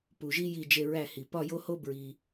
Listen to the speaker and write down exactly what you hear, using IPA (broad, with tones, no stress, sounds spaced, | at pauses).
p u˨ ʒ i˥ j i˥˧ d͡ʒ e˥˧ ɹ æ˥˧ h i˨ p ɒ˥˧ j o˥ h o˥ b ɹ i˨